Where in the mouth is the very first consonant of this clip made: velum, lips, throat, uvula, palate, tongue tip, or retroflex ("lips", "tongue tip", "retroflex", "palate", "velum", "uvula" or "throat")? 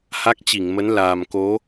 throat